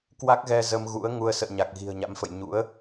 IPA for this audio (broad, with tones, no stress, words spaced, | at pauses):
kwa˦˥k̚ɣɛ˧ zə˧mɣṵ˧˥ə̯ ŋu˧ə̯ sə̰ː˧˨ɲa˨˩k̚ ɣi̤˨˩ə̯ɲa̰˧˥mfə̰˧˨j ɲṵ˧˥ə̯